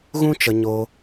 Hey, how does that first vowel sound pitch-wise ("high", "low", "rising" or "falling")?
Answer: high